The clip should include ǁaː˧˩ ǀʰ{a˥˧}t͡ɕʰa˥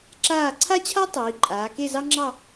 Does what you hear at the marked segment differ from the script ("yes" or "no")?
yes